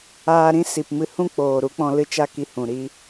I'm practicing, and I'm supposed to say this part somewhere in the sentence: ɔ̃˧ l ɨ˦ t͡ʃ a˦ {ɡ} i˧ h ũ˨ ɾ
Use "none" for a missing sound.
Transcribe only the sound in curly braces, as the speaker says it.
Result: k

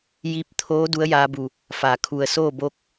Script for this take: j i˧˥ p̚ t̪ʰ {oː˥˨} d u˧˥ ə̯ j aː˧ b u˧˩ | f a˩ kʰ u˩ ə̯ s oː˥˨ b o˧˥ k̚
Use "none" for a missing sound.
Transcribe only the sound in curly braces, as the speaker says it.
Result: oː˧˥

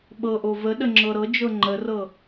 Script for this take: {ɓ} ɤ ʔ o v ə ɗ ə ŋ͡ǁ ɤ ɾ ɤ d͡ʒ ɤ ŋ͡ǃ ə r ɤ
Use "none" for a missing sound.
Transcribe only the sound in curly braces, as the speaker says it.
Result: ɓ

